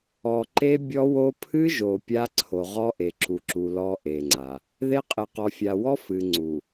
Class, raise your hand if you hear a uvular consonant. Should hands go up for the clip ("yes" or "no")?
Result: yes